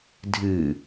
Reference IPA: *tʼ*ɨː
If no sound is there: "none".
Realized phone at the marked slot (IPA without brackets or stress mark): dʱ